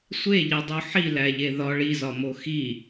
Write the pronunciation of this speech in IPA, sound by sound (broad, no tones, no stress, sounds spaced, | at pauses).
sʷ e ʎ i dˤ u ħ i l æ ʎ e ð ɒ ɭ i z ɒ m o x i